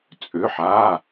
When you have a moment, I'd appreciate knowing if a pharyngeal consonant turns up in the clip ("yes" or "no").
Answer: yes